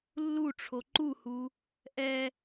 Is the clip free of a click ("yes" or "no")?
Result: no